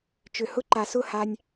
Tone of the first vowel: low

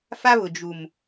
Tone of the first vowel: high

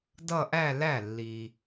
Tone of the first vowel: falling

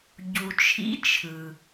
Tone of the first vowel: low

